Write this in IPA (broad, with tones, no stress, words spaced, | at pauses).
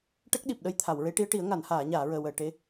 ʈə˦˥k̚ɗi˨˩p̚ɗə˧j t̪ʰa˨˩˨wɹe˧˥ʈi˧˥ə̯ʈi˨˩˦ə̯ ŋa˨˩˨nhaː˨˩˨ɲaː˨˩˨ ɹəː˨˩wəː˨˩˨ ʈe˧˥